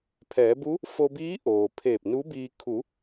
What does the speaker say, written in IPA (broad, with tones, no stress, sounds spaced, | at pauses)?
pʰ ɛː˩˧ b u˧˥ | f o˧ b iː˧˥ ʔ oː˩ pʰ eː˧˩ p̚ n u˧˥ b iː˧ kʰ u˩˧